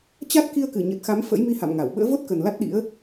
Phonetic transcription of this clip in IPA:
t͡ɕa˦˥t̚ ki˧ə̯kɨ˧˩ɲə˨˩t̚xa˨˦m fə̰˧˥jmi˧ha̰˧˨mŋa˧˩w ɓə̰ː˧˥vo˦˥t̚kə˨˩n la˦˥t̚ɗḭ˧˥ə̯

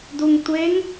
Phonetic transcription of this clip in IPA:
duŋtʷeŋ

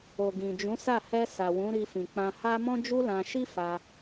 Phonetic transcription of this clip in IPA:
o˨ɡĩ˨ d͡ʒũ˨˦sa˦˨ hɛ˧ sa˨wũ˨˦ɾi˧ fĩ˨k͡pã˧ha˦ mɔ̃˦d͡ʒu˦lã˧ ʃi˦ fa˧

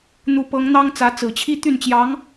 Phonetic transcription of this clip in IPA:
n̪u˧˥pɤ˧˥ŋ n̪ɑ˥ŋt͡sä˧˥ t͡sɹ̩˨˩t͡ɕʰi˥t̪y˥˩nt͡ɕjɑ˧˥ŋ

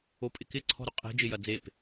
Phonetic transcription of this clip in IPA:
opʼɪkɪ ǀʰɔ̤ɾʊqʼe̤ d͡ʒɪjɐd͡zep

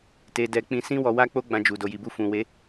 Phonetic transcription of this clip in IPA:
te˨dɛ˨ k͡pĩ˧sĩ˦wɔ˧wa˦ k͡po˦ɡ͡bã˧d͡ʒu˨ do˨ji˨bu˧ fũ˨we˨˦

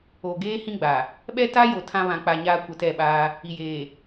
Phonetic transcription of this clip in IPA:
o˨ɡeː˦ hĩ˦ɡ͡ba˨ | ɓɛ˦ta˦ jo˨ tʰã˦βã˨k͡pa˨ ɲaː˦kʷɛ˨ tɛ˦˨ɓaː˦ | i˨jeː˨

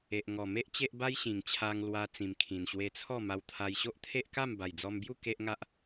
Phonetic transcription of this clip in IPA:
e˨ʔŋɔ˨˩me˦ʔ t͡ɕe˦ʔ ba˦jɕĩ˨˩ŋt͡ɕʰa˧ŋ lwa˧ t͡sĩ˨˩mkʰĩ˨˩nɕwe˧t͡sʰɔ˥˧ ma˧wt̪ʰa˧j ɕo˦ʔt̪ʰe˦ʔ ka˥˧mba˨˩jd͡zɔ˧mbju˥˧ ke˦ʔŋa˦ʔ

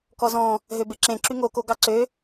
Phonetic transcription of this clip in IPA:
kɔzɔ̃ | ɦøbeǁẽ ǁyŋo koɡɑǀø

